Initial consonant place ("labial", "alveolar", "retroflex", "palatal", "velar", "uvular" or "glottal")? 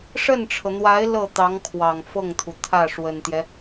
retroflex